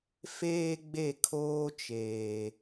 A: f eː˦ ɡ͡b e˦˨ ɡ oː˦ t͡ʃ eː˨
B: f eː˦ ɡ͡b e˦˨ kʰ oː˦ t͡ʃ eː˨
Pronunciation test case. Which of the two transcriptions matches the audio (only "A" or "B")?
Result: B